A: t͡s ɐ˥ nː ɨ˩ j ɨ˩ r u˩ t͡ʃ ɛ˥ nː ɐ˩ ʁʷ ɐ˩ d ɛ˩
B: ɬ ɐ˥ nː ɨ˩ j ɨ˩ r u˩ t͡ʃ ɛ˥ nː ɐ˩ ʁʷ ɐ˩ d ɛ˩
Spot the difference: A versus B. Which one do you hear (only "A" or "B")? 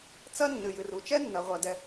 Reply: A